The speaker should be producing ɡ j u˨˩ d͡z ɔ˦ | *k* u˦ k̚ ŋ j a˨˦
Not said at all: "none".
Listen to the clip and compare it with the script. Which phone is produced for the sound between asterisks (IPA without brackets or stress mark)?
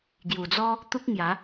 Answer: t̪